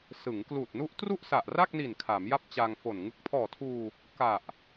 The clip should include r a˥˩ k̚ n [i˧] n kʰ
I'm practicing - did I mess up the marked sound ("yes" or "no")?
yes